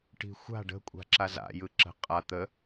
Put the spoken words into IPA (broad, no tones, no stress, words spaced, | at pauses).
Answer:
ʈi̤xʷa̤ ɖə̤kʷʼa̤ ǁaza̰ jɯǁə̤ qʼa t̪ə